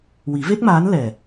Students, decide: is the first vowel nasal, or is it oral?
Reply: oral